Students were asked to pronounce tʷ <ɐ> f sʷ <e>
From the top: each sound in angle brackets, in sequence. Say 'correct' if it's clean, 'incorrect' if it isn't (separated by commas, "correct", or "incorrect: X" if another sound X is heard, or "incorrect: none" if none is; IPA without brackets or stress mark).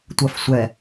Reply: correct, incorrect: ɛ